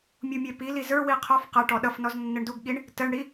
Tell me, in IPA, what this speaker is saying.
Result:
mʲ u mʲ ɛ p i l i z ə˞ w i qʰ ɔ f q ʌ ʈ ɔ ɗ ʌ f n ɔ z nː ɪ ɳ d u ɡ ɠ i ɳ | t ə ɳ ɽ i

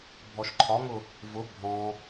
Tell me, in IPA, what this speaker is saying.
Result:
bʱ ɔ ʃ ǃʰ ɒ ŋ ʊ | v ʊ bʱ ɔ̃

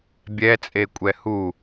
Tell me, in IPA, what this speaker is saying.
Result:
bʲ ɛ t͡sʼ e kʷʼ ɛ h u

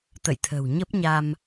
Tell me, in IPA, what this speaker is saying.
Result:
t̪ ə̰˧˨ j t̪ʰ ə̤˨˩ w ɲ ə˦˥ p̚ ɲ a˧ m

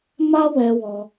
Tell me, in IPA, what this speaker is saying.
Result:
m a˦ w ɛ˧ w ɔ˧

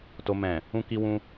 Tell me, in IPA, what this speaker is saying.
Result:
t o˧ m ɛ̃˨ | ũ˦ k i˦ w ũ˦

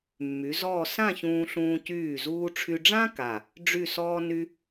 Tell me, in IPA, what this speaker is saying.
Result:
mː y˩˧ z ɔː˥˧ s ã˥˧ ç ũː˧ ɬ ũː˧ c yː˧˩ z uː˧ ʈ͡ʂʰ y˧ ɖ͡ʐ ã˥ k a˧˩ | ɖ͡ʐ y˥˧ s ɔː˥ n y˥

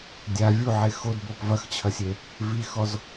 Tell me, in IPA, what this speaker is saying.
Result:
dʲ a vʲ u ʕ e x o d b o p v ɐ x t͡ɕʰ ɐ sʲ e | v i x ɔ z

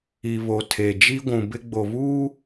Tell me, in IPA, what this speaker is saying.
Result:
i˨ β o˨ tʰ e˨ d͡ʒ i˦ ɡʷ ũ˨ b ɪ˦ ɡ͡b o˨ β uː˦

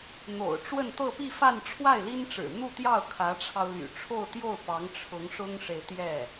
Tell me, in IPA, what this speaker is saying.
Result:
n̪ o̰˨˩ ʊ̯ ʈ͡ʂ w ə˥˧ n t̪ ɤ˥˧ p i˥˧ f a˥˧ n ʈ͡ʂʰ w a˥˩ ɪ̯ l i˥ n ʈ͡ʂ ɻ̩˨˩ n̪ u˥˧ t̪ j ɑ˥˩ ʊ̯ kʰ ä˧˥ ʈ͡ʂʰ ɑ˧ ʊ̯ l y̰˨˩ ʈ͡ʂʰ o˥˧ ʊ̯ t̪ j o˥˩ ʊ̯ p ɑ˧˥ ŋ ʈ͡ʂʰ ʊ˧˥ ŋ ʂ ʊ˥ ŋ ʂ e˨ ɪ̯ t̪ j ɛ˥˩

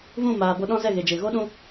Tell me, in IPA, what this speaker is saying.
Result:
v ũ˦˨ m aː˨ b o˧ ɗ ɔ̃˦ z ɛ˦˨ ɣ e˨ d͡ʒ e˨ ɣ o˦ ɗ ũ˦

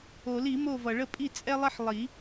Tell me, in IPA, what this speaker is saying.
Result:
o˨˩˦ l i˨˩˦ m o˦˨ v ʌ˩ ɭ ə˦˨ pʼ i˦˨ t͡sʼ ɛ˥ lˠ ɐ˥ ħ lˠ i˨˩˦

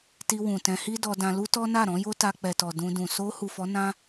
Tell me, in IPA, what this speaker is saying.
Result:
t i˧ w ũ˨ t ɛ̃˧ h i˦ d ɔ˧ d ã˧ l u˦ t ɔ˦ n a˦˨ ɾ ɔ̃˨˦ j o˦ t a˧ k͡p ɛ˨ t ɔ˨ d ũ˧ d ũ˨ s o˧ h u˨ f ɔ˨˦ n ã˦

